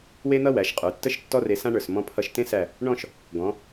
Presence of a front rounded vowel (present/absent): absent